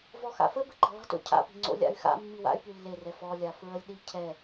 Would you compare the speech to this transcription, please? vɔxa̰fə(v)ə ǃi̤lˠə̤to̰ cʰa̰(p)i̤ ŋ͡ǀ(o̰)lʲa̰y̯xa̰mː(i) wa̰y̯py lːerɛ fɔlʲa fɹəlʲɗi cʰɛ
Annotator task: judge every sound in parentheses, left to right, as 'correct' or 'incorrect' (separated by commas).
incorrect, correct, correct, correct